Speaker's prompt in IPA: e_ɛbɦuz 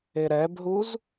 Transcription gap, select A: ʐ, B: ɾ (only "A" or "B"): B